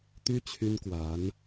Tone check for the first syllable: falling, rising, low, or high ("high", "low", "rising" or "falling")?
high